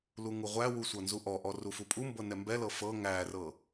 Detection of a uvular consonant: present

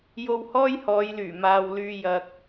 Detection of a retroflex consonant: absent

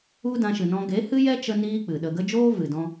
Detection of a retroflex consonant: absent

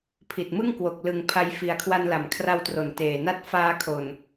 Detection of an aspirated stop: present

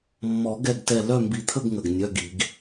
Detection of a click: absent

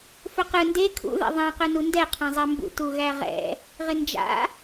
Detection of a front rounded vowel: present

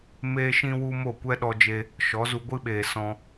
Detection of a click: absent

